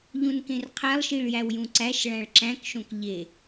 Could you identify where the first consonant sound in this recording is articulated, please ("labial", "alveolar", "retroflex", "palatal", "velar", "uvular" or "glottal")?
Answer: palatal